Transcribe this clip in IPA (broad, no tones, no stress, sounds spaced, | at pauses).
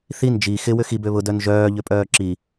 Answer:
θ i n d͡ʒ i x ɪ w ʏ x i b ø β ʊ d œ n ʒ œː ʎ ʏ pʼ œː ǁ i